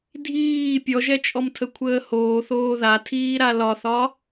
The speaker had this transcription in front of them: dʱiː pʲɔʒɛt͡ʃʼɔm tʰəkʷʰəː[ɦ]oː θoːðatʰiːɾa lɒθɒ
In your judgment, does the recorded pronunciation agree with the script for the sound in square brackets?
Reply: no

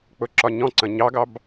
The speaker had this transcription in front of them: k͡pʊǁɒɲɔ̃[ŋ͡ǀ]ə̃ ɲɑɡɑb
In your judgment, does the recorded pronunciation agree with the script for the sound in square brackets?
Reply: no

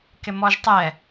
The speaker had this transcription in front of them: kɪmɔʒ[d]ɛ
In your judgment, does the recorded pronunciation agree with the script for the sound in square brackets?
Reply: no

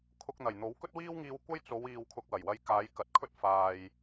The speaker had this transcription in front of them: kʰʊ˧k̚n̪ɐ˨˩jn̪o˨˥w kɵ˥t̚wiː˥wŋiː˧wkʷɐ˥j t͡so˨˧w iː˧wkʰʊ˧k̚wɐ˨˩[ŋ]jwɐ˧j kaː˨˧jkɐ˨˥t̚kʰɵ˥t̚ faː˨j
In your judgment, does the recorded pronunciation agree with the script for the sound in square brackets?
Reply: no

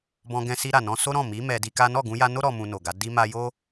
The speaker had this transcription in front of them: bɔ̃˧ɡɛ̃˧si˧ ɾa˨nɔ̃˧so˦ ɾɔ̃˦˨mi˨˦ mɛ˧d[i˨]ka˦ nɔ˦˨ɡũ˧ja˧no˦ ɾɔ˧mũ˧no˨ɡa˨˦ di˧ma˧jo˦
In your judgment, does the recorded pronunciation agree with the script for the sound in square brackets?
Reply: no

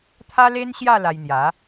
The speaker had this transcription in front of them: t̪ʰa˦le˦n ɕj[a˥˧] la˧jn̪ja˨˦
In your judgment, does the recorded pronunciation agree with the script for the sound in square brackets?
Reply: yes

